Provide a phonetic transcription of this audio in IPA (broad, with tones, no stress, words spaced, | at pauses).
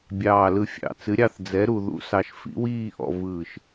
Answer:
bʲɑː˧˩lɯ˧ fʲɑ̰˧˩ t͡sɨ˨˥ɾʲɑ˥˧θ d͡zɛ˨˥ɾu˧ðṵ˨˥sɑ˧ʃ fḭ˨˥wiː˥˧ʔɔ̰˧ vɯː˧˩ʃ